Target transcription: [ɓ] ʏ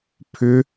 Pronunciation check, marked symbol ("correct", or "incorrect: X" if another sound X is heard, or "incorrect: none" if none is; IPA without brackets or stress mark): incorrect: pʰ